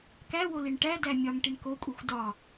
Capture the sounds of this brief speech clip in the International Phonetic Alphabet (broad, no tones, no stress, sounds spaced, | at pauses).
k æ w o l i ɳ ʈ æ d æ mʲ ɒ ŋ ʈ i ɳ k o kʷʼ e xʷ d ɒ